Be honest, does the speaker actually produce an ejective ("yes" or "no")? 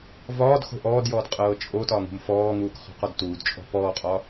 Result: yes